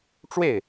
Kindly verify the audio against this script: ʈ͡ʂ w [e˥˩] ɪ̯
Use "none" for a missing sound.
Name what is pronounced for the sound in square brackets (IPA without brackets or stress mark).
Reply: e˥˩